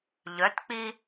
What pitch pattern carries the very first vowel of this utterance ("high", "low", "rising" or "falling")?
rising